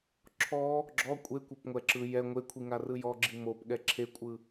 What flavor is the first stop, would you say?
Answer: click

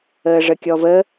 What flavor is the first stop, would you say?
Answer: plain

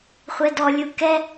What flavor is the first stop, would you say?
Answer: plain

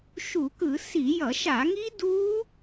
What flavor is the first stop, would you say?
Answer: plain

